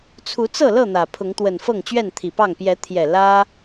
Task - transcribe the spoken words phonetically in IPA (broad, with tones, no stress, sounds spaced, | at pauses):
t͡sʰ u˨˦ t͡s ɤ˥˨ l ɤ˥˨ n̪ ä˨˩ pʰ ʊ˨˦ ŋ t̪ w ə˨˩ n f ɤ˥˨ ŋ t͡ɕ ɥ ɛ˥˨ n t̪ʰ i˨˩ p ɑ˥˨ ŋ p j ɛ˨˦ t̪ʰ j ɛ˨˩ l ä˦